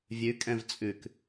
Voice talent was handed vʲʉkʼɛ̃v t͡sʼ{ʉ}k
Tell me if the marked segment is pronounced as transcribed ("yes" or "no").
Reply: yes